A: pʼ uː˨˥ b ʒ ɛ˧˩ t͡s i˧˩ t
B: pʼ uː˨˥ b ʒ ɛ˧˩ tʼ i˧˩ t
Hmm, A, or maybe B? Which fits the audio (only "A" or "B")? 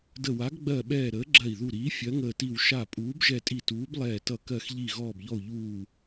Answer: B